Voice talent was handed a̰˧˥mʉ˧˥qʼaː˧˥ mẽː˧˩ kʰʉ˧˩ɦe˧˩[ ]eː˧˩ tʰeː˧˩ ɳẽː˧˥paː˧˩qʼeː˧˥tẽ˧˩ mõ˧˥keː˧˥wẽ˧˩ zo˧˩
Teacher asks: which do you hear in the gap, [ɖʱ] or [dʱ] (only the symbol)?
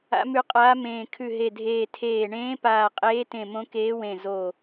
dʱ